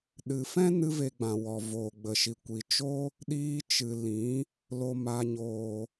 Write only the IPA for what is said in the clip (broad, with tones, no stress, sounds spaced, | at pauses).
ɗ ɨ˨ f ɛ̃˦ n ɨ˦ v e˧ ɡ͡b ã˨ w ɔ˨ v oː˨ ɡ͡b ə˨ ʃ i˨ kʷ i˨ t͡ʃ o˦ | ɗ iː˧ t͡ʃ ɨ˨ l ĩ˨˦ | l o˨ m a˨ ɲ oː˨